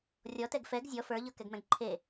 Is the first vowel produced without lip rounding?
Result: no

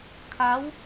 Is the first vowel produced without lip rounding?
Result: yes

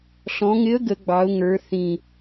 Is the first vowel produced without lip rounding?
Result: no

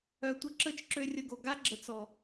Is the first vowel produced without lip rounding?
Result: no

